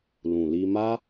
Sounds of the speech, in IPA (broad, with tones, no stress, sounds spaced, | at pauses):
l ũ˨ l i˧ m a˦